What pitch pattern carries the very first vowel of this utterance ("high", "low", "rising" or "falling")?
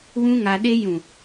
high